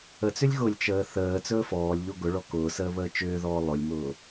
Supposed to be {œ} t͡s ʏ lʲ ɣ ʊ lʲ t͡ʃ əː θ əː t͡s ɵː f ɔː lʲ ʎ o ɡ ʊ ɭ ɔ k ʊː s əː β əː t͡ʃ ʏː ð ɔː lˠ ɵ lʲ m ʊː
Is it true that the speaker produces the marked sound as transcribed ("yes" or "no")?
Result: no